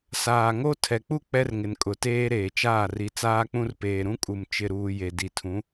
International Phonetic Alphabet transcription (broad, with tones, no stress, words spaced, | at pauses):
saː˨ŋo˦ tʰɛ˨k͡pu˦ k͡pɛ˦rŋɪ˨nkʼʊ˨ teː˦ɾeː˨t͡ʃaː˦˨r i˨t͡saː˦k͡pũ˦rpeː˨ ɾũ˦kʼu˨m t͡ʃɪ˨ɾuː˨ je˨di˨tʰũ˨˦